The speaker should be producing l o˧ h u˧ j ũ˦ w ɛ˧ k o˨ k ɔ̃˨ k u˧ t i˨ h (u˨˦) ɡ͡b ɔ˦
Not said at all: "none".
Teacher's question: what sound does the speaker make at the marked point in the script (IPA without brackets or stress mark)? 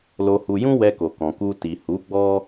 u˨˦